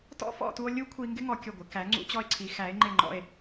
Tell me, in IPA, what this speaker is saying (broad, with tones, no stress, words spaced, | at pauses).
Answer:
tɔ̰˥fɔ̰˥˧tu˧o̯ lʲu˥kʷʰi˧ ŋɡɪ˥ŋɔ˧ kʲʊ˧˩ɡʷɪ˩˧ kæ˩˧ŋ͡ǀṵ˧t͡ɕɔ˧e̯ǀʰi˩˧ xæ˩˧e̯ŋ͡ǃɪ˧˩ŋ͡ǃɔ̰˧˩e̯